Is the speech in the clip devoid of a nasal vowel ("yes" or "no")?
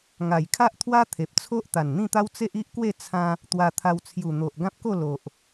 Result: no